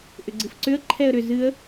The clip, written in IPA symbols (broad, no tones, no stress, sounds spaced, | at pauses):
ʔ ʏ ɡ͡ǀ ɨ f ǀ ʏ ə̯ ǃʰ ɛ ə̯ ɾ ʏ z ɨ ə̯